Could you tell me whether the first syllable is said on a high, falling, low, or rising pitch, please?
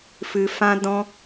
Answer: low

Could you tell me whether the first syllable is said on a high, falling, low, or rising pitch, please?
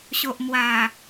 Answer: low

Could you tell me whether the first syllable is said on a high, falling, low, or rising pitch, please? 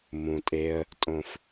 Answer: low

